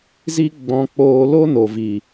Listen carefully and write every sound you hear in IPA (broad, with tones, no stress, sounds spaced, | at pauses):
z i˦ ɡ͡b ɔ̃˧ k͡p oː˧ l o˦ n o˨ v i˨